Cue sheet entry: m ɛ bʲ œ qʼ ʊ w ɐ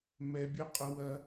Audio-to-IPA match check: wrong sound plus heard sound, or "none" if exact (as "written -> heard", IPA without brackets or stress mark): none